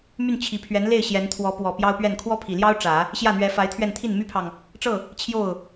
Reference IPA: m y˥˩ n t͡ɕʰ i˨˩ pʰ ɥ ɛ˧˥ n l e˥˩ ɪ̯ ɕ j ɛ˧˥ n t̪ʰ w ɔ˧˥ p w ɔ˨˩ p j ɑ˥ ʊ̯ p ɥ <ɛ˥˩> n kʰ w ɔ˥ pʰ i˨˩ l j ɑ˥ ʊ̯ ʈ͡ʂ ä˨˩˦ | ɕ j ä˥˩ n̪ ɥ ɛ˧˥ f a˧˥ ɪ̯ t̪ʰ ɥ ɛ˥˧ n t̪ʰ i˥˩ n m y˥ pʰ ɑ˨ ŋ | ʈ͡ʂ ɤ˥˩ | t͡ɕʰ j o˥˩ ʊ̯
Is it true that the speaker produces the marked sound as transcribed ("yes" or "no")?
yes